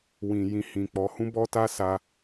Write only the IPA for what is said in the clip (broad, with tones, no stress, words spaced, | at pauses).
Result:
wĩ˨jĩ˧hĩ˨k͡pɔ˨˦ hũ˦bɔ˦ta˦ sa˧